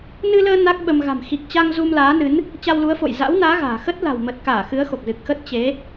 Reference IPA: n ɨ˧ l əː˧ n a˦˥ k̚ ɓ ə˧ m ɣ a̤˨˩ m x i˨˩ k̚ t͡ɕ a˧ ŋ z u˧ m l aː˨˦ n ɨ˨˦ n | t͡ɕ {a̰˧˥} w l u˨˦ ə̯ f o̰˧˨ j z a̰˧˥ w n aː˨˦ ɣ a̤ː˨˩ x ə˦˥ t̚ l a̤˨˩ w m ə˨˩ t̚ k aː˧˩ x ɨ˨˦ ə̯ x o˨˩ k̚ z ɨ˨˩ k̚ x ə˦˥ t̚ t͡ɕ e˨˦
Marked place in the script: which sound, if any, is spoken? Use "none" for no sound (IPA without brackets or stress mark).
a˧